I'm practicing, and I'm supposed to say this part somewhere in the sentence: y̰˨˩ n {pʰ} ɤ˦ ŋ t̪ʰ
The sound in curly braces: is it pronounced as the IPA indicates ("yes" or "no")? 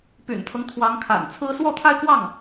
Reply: no